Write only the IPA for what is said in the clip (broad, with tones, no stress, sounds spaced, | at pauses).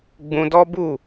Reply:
ɡ͡b ũ˧ d ɔ˦ b u˦˨